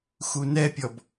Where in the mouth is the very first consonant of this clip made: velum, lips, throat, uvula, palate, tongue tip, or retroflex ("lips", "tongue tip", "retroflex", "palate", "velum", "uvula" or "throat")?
velum